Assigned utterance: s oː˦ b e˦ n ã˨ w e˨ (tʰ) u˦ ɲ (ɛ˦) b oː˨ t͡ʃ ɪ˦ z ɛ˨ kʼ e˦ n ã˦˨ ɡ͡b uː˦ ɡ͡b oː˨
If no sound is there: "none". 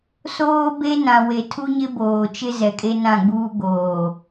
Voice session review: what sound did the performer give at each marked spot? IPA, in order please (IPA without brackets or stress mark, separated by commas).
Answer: tʰ, ɪ˦